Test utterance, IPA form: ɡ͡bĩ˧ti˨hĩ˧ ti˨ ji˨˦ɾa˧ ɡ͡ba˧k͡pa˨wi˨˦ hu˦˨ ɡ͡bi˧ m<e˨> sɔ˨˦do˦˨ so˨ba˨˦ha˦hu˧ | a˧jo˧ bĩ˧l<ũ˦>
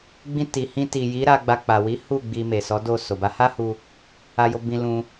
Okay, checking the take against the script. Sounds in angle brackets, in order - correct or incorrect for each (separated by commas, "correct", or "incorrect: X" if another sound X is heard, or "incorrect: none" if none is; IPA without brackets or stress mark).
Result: correct, incorrect: ũ˧